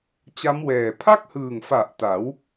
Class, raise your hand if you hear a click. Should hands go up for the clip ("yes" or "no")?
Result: no